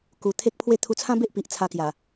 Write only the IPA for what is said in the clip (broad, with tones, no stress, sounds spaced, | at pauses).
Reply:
k u˧ t̪ʰ e˦ k̚ pʰ w e˦ t̪ʰ u˧ t͡sʰ ã˦ b e˦ ʔ p i˨ ʔ t͡sʰ a˧ k j a˨˩